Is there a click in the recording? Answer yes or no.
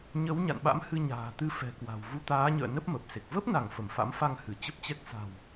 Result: no